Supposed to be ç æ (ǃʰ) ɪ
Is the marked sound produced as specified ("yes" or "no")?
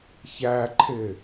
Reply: yes